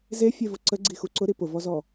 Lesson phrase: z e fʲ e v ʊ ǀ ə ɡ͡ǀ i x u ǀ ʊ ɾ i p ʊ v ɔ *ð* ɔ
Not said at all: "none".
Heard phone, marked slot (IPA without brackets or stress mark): z